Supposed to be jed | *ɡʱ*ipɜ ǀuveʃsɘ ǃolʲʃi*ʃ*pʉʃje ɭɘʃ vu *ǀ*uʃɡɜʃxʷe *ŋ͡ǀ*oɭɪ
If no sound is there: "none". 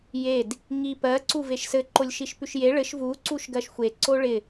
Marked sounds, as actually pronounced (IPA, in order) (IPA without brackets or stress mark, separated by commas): ŋ, ʃ, ǀ, ǀ